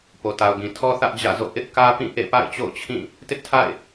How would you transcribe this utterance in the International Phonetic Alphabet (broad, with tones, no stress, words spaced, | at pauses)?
po˨ta˨ʊ̯ɡĩ˨ tʰɔ˦ θä˦ʔ d͡ʑä̰˦˨zo̰˦˨ ʔɪ˦ʔkä˦pĩ˦˨ ʔḛ˦˨pa̰˦˨ɪ̯t͡ɕo̰˦˨ʊ̯t͡ɕʰĩ˦˨ | tɪ˦ʔtʰa̰˦˨ɪ̯